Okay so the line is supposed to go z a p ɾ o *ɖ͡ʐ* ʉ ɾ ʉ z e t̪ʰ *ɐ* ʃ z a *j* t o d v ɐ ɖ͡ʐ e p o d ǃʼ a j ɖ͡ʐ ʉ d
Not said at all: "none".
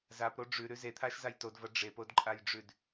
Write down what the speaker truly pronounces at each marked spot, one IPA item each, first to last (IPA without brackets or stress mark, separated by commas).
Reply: ɖ͡ʐ, a, j